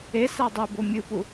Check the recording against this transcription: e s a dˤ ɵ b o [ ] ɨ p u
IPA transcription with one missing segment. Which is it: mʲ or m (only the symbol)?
mʲ